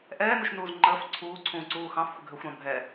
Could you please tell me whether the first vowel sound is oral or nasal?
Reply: oral